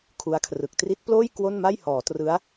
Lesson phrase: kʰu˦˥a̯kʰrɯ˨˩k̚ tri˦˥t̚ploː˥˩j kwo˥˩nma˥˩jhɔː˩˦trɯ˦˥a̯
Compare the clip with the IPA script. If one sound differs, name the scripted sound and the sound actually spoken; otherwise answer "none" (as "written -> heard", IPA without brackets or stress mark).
none